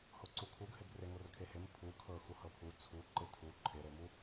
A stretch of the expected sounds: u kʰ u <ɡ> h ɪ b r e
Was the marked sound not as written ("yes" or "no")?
no